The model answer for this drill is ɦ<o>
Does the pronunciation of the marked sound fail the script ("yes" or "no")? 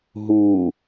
yes